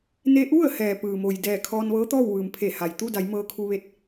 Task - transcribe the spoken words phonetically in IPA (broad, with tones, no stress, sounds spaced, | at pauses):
n e˧ ʔ u˥˨ ə̯ h ɛː˩ p ɯː˩ m o˩ j d ɛː˧˩ kʰ ɔː˧ n ʋ ɤː˧˥ t̪ ɔː˥˨ w ʋ ɯː˩ m pʰ e˧˩ h a˩ j t̪ u˥˨ d a˩˧ j m ɤː˧ kʰ u˧ ʋ e˧ t̚